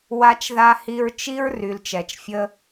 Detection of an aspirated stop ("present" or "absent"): absent